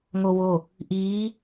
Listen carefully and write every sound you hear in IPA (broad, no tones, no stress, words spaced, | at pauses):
ŋowo | ʔiː